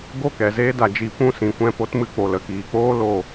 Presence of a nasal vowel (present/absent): present